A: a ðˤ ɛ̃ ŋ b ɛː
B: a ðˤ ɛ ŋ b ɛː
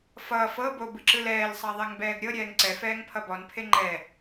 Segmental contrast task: B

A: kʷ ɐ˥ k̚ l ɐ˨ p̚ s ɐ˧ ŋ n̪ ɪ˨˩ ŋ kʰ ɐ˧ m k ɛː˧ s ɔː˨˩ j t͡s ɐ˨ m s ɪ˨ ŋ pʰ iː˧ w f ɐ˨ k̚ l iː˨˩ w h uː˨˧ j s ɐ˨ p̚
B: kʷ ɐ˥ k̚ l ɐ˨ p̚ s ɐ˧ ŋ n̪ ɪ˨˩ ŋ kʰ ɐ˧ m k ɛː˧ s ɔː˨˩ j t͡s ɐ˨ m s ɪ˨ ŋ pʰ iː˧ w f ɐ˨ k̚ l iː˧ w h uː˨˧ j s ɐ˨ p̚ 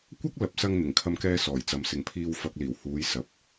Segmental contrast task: A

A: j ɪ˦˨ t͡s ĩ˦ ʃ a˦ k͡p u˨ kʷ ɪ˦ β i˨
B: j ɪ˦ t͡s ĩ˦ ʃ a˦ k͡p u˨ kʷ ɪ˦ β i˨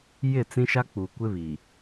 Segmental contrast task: A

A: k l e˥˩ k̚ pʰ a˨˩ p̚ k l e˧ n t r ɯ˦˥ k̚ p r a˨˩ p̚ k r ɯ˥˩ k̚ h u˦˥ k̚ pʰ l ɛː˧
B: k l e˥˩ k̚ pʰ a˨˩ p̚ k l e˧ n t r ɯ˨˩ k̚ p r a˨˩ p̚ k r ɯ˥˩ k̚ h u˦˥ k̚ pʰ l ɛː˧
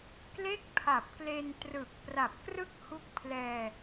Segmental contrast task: B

